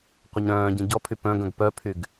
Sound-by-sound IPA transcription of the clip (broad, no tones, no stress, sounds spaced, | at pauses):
qʷ ə ɲ ɾ œ̃ː ɟ ĩ ɟ ɔ pʰ y p œ̃ ɡ œ̃ ɡ p œ pʰ y ɡ